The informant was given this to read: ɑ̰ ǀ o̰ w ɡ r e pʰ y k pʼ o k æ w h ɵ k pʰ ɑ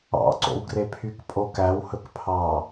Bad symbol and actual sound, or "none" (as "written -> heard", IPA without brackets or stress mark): none